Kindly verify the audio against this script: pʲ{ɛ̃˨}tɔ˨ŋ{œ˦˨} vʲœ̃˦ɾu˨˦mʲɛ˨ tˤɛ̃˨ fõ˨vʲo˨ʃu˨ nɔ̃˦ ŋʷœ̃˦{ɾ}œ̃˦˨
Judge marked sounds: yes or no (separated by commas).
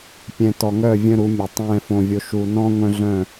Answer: yes, yes, no